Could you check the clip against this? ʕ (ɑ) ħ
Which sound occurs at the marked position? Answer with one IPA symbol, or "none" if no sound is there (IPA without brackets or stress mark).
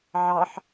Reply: ɑ